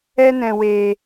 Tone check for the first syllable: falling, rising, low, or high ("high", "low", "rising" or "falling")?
high